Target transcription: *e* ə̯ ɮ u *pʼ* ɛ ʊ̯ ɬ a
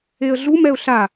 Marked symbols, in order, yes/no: yes, no

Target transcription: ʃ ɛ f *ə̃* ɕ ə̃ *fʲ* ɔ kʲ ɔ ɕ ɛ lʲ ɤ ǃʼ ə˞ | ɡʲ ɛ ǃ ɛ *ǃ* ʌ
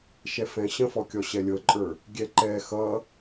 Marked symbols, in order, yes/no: no, no, no

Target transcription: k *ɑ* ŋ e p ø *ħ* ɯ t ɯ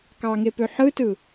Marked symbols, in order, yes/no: yes, yes

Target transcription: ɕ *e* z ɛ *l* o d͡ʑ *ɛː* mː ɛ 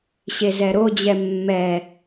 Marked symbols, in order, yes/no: yes, no, no

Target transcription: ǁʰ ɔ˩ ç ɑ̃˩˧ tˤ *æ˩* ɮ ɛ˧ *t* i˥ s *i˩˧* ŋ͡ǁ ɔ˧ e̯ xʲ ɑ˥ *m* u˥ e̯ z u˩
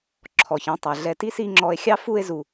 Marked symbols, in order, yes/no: yes, yes, no, no

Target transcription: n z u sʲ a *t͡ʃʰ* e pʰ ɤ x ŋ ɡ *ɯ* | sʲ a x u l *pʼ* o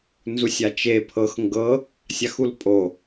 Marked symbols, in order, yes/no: no, no, yes

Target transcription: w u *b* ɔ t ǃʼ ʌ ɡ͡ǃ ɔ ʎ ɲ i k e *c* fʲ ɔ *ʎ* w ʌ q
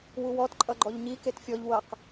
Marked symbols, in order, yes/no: no, no, yes

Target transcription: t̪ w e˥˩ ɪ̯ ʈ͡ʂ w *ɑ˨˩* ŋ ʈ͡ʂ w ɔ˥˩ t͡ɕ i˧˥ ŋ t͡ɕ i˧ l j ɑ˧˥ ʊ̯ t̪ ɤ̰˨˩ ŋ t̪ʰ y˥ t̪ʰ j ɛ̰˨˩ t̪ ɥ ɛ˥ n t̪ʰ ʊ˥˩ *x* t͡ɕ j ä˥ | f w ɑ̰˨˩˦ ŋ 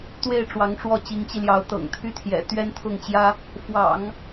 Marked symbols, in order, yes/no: no, no

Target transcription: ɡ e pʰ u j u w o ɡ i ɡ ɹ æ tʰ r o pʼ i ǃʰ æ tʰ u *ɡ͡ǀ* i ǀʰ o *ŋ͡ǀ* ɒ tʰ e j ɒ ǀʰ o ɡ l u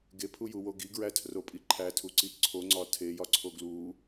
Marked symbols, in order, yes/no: no, yes

